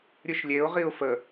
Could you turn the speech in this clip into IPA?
ɾʲ ɨ ʃ lʲ e ʊ̯ ʁ i ʊ̯ f ə

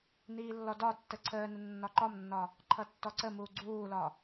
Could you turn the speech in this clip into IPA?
n iː lː ɔ d ɒ tː ə ǀʰ əː n ʊ nː ɒ ǃ ɒ m nː ɒ | ǃʰ ʌ tː ɔ ǀ ə m uː ɡ͡ǀ uː l ɒ

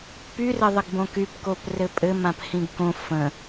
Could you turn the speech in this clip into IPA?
p y r ɘ ðˤ ə ɡ b õ k y p k o p r ɘ pʼ ɘ m ã p h ĩ ɡ k õ f ə̃

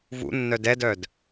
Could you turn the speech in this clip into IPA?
v ṵ nː œ d ɛ d œ d

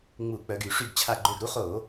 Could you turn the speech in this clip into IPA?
ŋ͡m u˧˩˧ k͡p œ˩˧ ɡ y˧˩˧ ʂ y˧˩ ɡ t͡ɕʰ a˧˩ ɡ͡ǃ ø˧˩ ɡ ɾ u˦ χ o˧˩˧

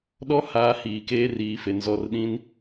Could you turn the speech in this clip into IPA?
ɗ ɔ˦ h aː˨˦ h iː˨ k eː˦ r iː˨˦ f e˨ n z ɔ˦˨ r ɗ ĩ˦ n

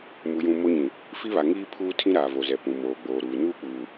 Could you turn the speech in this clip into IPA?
m u˨ j ũ˨ m o˦ ɲ ĩ˨ | f i˦ β a˨ ŋ iː˦ pʰ uː˦ tʰ ĩ˦ ɾ aː˨ v o˨ z ɛ˨ p ũ˨ m oː˨ ɡ͡b oː˨ ɾ uː˨ n uː˦ k͡p uː˨

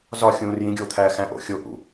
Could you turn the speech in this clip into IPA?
z ɒ xʲ ũː r j ĩ ɡʲ oː t̪ʰ æː x æ̃ ʔ o̰ xʲ o ʔ ṵ

